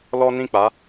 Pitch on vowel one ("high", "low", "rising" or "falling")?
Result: high